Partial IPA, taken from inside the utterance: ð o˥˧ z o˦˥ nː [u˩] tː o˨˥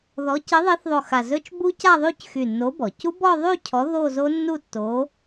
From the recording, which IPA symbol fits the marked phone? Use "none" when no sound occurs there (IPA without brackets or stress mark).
u˥˧